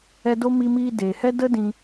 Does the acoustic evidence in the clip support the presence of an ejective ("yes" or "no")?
no